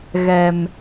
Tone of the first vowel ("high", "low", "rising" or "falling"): low